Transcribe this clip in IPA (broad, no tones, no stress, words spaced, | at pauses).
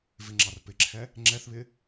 vɪŋ͡ǁɑrpɪǁʰɛ | ŋ͡ǁɛθβɪ